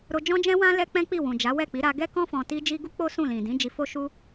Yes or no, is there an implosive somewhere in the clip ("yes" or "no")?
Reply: no